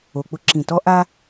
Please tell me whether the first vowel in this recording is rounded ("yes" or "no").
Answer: yes